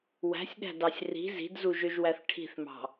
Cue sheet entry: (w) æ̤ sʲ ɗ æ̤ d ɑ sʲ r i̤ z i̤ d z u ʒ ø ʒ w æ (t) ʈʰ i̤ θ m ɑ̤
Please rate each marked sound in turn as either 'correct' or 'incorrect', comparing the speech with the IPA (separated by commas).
correct, incorrect